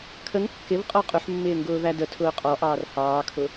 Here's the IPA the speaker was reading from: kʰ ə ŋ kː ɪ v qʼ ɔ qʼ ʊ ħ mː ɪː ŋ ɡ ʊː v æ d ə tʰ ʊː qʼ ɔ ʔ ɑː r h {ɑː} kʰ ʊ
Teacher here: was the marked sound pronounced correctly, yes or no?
yes